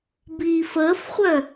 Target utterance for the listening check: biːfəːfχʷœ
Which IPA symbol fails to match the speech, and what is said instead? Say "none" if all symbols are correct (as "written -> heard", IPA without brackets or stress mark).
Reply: none